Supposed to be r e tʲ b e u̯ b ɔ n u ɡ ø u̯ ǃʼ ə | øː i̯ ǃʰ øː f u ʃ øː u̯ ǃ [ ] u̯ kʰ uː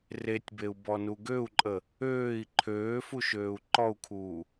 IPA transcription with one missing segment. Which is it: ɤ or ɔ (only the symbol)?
ɔ